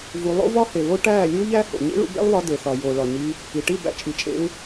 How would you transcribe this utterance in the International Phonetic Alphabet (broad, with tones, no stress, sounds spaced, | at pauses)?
v u˧ lˠ o̰˦ v ɒ˦ h e˨ β o˦ ʈ æː˦˨ lʲ uː˦ ʎ æ˦ h o̰˨ ɲ ḭ˦ ɭ ṵ˧ b ḛ˦ lˠ β ɒ˧ d e˨ θ ɒ˨ j oː˨ ɭ ɒ˨ ɲ i˧ | i˨ ʈ i˦˨ b æ̰˧ t͡ʃʼ i˨ t͡ʃʼ ḛ˧ u̯